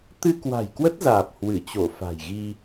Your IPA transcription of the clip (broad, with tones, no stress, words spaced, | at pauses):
t̪ɨ˧kwa̤˨˩jkwə˦˥t̚zaː˨˩p̚ hwɨ˧˩t͡ɕo˧˩ fa̤˨˩jɣi˧